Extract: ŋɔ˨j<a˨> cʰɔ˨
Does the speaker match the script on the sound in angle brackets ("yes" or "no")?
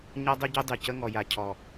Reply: yes